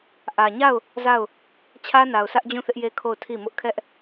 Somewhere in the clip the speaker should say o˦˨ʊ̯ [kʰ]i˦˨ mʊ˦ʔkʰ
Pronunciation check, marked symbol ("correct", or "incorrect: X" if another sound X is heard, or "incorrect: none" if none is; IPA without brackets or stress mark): incorrect: tʰ